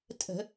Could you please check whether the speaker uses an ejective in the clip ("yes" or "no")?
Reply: yes